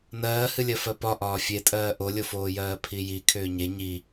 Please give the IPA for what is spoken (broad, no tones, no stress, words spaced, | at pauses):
nɜːhɨlʲɜ fɜpɒ ʔɒːfʲetʼɜː ʔolʲofoːjɜː pʰiji kʰʏːɲe ɲi